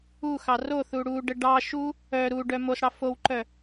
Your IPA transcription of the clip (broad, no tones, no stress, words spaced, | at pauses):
uxɑ roθu ɽuɖə ɖɑ ʃu | œ ɾuɖœ mosɽɑ fowǃœ